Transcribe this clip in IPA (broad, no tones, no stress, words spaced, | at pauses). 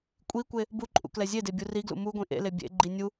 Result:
kʷʼikʷe | buǃʼṵ klɛzʲede bʲuriɡlṵ muɡʷĩ ʔḛle bʲḛɡ͡ǃi nʲu